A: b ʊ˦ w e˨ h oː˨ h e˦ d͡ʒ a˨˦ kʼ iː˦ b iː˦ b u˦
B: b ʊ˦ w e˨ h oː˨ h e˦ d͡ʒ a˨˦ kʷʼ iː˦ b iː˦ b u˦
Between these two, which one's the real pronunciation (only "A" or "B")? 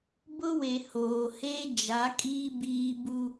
A